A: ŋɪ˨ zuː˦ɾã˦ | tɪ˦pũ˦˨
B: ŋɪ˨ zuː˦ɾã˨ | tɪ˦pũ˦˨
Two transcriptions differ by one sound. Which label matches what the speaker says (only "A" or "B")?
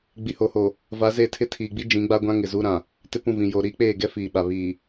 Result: B